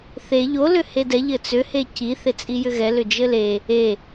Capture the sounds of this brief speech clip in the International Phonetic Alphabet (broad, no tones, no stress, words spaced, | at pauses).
θe ʎo lʏhedɛ ʎɘt͡sʏ heci θet͡sʼijʏɣɛ lʏd͡ʒɘle | e